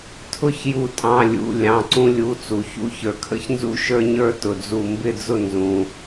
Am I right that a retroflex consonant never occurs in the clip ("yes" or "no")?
yes